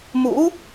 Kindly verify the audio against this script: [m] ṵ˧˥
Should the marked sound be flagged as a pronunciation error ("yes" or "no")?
no